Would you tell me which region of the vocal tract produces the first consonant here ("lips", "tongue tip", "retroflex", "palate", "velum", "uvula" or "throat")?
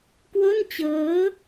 velum